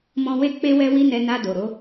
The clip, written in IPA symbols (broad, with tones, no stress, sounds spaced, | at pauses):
m ɔ̃˧ w e˦ k͡p e˦ w ɛ˦ w i˦ n ɛ˧ n a˧ d o˨ ɾ o˨˦